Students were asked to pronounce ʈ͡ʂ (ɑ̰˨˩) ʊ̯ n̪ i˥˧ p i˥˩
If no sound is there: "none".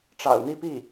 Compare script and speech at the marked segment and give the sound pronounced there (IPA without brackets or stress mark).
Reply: ɑ̰˨˩